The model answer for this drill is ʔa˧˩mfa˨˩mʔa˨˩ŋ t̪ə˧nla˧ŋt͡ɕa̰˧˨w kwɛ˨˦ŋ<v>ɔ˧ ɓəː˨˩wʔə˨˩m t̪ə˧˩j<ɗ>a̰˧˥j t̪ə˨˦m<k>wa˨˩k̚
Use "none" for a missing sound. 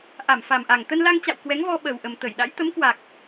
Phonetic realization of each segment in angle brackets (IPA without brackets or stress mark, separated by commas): v, ɗ, k